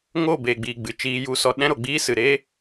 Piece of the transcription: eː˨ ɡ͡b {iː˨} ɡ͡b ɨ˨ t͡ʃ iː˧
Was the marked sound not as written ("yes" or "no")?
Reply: no